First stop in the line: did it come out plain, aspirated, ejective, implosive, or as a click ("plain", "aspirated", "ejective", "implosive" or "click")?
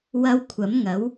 aspirated